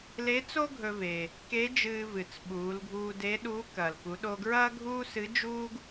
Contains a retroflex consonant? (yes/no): no